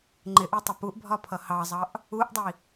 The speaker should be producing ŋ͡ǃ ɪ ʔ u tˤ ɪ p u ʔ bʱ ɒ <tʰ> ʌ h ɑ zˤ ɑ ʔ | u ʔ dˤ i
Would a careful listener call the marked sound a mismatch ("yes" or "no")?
yes